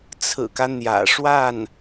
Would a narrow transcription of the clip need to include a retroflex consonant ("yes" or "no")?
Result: yes